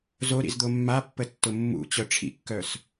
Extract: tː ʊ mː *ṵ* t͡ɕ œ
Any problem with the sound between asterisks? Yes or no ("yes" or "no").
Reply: no